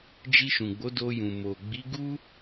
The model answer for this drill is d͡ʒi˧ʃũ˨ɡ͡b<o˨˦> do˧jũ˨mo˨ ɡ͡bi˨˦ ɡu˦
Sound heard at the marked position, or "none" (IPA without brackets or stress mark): o˨˦